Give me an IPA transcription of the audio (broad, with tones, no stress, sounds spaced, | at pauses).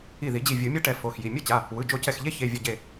i˧˩ ð i˨˩˦ d͡ʑ i˧˩ vʲ ɯ˨˩˦ mʲ a˦ ʈ ɛ˨˩˦ f o˩˧˩ x j i˩˧˩ mʲ o˦ t͡ɕ a˩˧˩ | w ɯ˩˧˩ d͡ʒ o˧˩ c ɛ˧˩ x ʎ e˦ ç e˩˧˩ vʲ ʌ˧˩ ɟ e˧˩